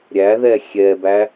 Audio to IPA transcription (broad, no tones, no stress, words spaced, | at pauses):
ɾʲæðɛ xʲɛbæ